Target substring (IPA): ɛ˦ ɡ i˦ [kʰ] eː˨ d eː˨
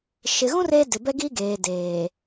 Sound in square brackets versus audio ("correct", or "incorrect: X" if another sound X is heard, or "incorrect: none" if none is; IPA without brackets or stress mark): incorrect: ɡ